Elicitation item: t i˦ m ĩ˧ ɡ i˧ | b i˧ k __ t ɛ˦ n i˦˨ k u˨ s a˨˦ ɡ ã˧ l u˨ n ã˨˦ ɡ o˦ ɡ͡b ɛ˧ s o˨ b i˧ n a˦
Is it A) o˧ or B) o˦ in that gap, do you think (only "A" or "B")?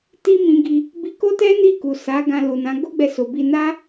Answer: B